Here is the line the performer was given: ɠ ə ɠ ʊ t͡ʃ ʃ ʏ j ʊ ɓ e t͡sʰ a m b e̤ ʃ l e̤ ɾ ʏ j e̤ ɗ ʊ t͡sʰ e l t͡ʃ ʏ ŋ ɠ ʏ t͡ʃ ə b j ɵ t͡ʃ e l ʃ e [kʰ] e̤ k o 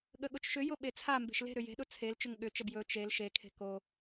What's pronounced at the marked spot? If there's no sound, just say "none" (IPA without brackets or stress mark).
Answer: kʰ